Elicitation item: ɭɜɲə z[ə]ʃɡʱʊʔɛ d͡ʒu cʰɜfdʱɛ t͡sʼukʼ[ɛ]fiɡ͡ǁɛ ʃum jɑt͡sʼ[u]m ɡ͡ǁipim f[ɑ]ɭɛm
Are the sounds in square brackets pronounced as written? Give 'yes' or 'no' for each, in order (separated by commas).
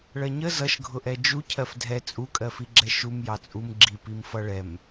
no, no, yes, no